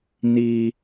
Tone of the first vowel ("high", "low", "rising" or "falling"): high